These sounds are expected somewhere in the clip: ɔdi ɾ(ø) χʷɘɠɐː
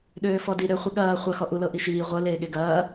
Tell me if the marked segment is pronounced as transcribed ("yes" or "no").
yes